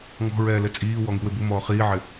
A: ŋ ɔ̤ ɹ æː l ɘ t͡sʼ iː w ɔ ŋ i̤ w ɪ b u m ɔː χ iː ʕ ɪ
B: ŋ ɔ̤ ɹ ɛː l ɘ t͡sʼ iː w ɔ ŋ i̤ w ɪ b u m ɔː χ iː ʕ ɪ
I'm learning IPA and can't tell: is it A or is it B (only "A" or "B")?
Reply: B